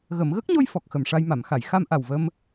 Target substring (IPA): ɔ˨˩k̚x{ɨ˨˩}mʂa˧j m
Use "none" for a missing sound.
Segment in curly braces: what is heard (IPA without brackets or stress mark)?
ə˨˩